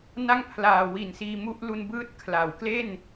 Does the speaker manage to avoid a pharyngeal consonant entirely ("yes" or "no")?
yes